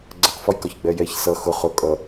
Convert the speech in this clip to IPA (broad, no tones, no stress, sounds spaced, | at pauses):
ɡ͡ǀ ɜ q f ɒ j k ɒ ç ɡ͡b ɛ j ɛ ç s ʌ x ʊ χ ʊ kʼ ʌ